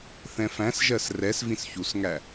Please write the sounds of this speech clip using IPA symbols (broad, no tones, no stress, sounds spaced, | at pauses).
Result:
θ ɛ̃ f æ̃ s ʒ ɜ s r ɛ s v ĩ s ç u s ŋ æ